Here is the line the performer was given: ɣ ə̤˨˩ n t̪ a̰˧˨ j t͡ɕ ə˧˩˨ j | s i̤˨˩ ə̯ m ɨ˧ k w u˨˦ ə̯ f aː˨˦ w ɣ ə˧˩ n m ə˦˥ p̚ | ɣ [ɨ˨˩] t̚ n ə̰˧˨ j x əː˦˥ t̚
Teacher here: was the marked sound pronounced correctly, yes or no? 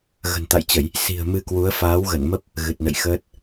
yes